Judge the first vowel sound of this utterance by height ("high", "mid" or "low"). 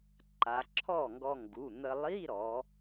low